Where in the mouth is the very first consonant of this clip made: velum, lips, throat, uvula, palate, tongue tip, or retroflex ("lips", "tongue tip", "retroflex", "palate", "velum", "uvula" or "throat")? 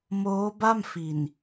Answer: lips